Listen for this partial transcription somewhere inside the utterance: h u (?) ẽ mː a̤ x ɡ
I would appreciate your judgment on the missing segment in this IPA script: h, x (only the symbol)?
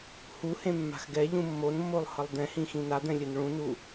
h